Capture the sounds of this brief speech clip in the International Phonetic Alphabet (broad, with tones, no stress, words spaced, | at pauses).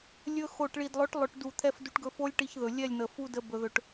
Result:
lʲɵ˧ xo˨ʈ ɭi˨dlˠɵ˨˦ʈlˠɵ˨ʈdu˨ t̪ʰɛ˧fdu˧ʈɡɵ˧ fo˦lʲ ʈi˧çðɵ˨lʲɛ˦˨lʲn̪ə˨ fu˧də˧ bɵ˧ðɵ˧ʈ